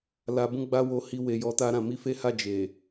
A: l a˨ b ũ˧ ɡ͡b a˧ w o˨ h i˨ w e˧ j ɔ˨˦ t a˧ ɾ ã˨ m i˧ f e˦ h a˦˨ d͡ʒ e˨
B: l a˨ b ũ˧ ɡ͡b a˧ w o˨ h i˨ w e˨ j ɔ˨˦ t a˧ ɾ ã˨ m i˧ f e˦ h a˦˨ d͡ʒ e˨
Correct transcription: B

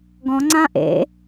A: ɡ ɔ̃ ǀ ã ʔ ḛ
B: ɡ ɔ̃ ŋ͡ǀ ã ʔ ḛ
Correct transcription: B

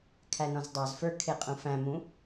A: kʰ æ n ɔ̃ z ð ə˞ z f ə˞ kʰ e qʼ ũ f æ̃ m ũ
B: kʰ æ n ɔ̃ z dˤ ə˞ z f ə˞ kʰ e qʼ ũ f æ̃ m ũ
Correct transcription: B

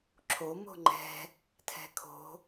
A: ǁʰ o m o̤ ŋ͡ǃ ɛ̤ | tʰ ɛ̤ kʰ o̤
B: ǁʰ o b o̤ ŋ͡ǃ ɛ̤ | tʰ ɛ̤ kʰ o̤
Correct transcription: A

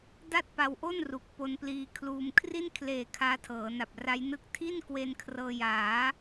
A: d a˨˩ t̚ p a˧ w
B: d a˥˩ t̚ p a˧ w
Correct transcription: B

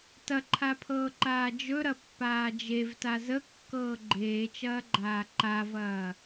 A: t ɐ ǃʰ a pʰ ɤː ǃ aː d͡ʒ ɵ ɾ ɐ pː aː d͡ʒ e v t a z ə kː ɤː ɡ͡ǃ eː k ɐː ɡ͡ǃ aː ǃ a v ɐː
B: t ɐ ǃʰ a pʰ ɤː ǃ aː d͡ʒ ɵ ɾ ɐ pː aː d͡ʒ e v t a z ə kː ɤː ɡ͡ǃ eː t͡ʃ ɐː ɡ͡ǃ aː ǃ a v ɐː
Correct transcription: B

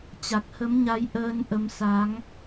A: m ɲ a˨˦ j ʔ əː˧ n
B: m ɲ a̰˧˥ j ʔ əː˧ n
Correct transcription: A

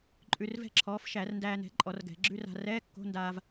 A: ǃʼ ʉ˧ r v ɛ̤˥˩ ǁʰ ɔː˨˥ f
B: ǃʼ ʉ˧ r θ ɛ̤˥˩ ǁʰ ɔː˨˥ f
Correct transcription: A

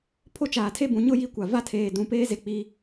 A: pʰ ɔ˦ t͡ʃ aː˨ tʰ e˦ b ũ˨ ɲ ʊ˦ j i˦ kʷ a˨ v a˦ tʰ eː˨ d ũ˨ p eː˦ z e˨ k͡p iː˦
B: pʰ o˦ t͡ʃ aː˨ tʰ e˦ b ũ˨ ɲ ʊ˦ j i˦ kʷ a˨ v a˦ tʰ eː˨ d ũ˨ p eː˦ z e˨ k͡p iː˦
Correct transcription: B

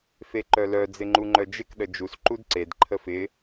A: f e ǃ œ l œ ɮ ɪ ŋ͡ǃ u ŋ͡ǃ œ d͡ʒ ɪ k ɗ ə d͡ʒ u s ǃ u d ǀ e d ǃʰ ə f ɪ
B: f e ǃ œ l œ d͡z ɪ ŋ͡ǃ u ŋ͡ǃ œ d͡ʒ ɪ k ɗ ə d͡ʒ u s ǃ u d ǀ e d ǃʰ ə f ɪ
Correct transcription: B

